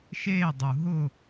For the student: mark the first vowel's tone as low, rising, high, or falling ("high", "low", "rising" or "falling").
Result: falling